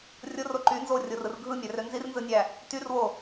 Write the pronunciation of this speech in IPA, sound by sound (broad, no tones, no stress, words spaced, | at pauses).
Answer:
rʲoro ǃy nzorʲorɯr ɡʱɯmʲærø nzirnzɯnʲæ | tyrwo